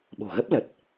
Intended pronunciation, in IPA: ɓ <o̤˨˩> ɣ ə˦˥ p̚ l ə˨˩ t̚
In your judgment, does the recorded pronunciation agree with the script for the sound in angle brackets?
yes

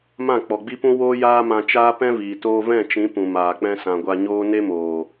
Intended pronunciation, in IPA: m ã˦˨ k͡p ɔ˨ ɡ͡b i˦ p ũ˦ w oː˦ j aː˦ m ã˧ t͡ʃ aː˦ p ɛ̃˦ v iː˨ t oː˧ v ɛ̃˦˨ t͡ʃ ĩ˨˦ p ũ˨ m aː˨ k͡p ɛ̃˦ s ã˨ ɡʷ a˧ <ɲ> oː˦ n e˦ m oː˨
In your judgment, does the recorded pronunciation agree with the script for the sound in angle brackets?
yes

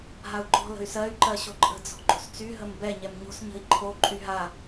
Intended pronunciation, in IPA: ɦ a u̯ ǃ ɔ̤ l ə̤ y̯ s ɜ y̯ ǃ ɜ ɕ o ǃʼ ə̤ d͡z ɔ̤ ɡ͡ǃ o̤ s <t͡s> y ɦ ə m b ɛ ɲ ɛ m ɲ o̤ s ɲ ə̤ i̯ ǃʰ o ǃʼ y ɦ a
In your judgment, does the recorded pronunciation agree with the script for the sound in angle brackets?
yes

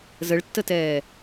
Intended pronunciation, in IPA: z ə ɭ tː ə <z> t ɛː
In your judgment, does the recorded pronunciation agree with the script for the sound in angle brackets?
no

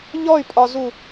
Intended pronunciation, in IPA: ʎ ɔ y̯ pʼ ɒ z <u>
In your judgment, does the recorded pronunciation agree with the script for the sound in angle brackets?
yes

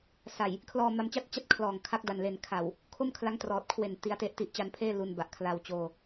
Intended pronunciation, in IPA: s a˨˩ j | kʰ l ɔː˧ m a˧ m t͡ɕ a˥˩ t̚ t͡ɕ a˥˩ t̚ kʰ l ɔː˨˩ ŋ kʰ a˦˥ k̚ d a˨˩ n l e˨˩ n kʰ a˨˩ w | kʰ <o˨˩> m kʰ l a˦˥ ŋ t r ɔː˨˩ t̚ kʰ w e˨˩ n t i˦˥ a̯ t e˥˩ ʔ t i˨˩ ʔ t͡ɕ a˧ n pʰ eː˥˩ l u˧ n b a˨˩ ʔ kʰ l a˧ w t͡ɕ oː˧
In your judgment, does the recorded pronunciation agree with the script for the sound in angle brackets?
no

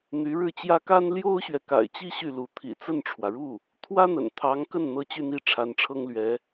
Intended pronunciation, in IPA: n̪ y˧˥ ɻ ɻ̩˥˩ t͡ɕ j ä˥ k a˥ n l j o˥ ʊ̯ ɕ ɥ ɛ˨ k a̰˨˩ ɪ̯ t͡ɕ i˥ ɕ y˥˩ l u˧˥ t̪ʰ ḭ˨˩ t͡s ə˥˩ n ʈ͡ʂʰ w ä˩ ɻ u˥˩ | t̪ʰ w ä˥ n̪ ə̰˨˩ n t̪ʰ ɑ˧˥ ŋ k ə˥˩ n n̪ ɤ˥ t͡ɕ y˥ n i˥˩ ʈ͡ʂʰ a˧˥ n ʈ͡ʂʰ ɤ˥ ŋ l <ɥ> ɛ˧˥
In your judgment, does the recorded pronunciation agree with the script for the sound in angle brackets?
yes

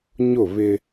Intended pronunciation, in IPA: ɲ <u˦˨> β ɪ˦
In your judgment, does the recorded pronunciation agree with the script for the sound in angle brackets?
no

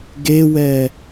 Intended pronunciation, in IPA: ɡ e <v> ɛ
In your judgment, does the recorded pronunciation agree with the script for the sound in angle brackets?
no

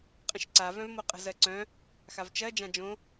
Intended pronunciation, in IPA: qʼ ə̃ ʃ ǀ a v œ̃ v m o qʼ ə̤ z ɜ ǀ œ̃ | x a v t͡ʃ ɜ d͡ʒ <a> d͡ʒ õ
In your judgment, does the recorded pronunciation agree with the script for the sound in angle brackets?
no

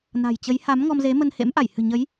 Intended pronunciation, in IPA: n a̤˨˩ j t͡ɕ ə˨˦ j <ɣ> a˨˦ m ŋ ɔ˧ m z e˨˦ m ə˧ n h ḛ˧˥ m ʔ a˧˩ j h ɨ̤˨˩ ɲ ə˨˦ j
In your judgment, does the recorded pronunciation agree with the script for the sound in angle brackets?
no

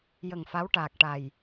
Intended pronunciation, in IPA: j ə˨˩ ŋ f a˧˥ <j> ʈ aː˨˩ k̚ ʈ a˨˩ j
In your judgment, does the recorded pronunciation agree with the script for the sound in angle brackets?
no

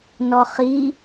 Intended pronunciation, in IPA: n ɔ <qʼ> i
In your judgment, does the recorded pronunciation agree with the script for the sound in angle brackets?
no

